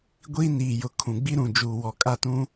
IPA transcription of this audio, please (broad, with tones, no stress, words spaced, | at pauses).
ɡʷiː˦niː˨ jʊ˨ kʰũ˨ɡ͡bi˦ɾũ˨d͡ʒuː˨ wɔ˨kʼa˦tũ˦